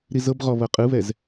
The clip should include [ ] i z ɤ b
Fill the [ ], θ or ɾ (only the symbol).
ɾ